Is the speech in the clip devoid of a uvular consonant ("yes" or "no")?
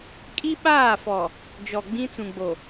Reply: yes